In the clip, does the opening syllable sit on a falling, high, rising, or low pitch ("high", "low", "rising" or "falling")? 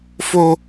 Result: high